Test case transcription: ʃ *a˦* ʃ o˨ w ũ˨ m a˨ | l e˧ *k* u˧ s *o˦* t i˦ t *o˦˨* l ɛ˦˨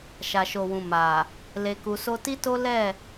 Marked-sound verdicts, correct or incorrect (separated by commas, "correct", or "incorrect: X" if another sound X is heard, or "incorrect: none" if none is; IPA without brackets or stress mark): incorrect: a˨, correct, correct, incorrect: o˦